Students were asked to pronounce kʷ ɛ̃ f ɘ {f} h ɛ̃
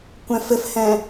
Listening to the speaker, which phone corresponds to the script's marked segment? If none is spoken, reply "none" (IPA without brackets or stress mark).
f